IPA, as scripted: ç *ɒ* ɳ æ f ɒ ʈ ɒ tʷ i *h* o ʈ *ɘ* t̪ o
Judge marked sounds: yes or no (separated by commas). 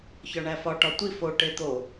yes, no, no